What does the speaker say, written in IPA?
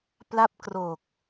p l a˦˥ p̚ k r oː˨˩ k̚

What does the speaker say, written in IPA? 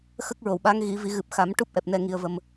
x ə˦˥ k̚ ɹ o˨˩˨ w ɓ a˧˥ ŋ ɣ i˨˩˦ v i˨˩˦ ɣ ɨ˨˩ p̚ x a˨˩˦ m ʈ u˦˥ p̚ ʔ ɛ˨˩ p̚ n ɛ˧ ŋ i˧ ə̯ v ə˧ m

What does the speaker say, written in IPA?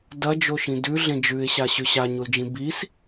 d ɐ d͡ʒ o ʃ ĩ d ʉ ɮ ẽ d͡ʒ ʉ ɪ̯ ɕ a ɕ ʉ ɕ a ɲ u l d͡ʒ ĩ b i s

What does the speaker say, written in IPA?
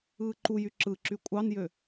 ɯː ǃ u j y ǁ ɯ ǁ y kʷʼ ɑ n j ø

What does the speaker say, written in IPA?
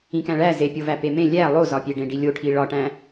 ĩ k æ̃ ɭ æ z e pʲ o v æ p e m ẽ lʲ æ lˠ o z ɒ pʲ e ɖ ẽ ɖ i lʲ o ʈʰ i ɭ ɒ ʈ æ̃

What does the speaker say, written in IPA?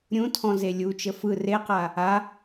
ɾʲ ũ tʰ ɔ̃ z e lʲ u t͡ʃ ə f ɯ r e q a | a

